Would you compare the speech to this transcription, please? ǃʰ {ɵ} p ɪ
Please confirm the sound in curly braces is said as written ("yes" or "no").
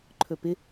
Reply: yes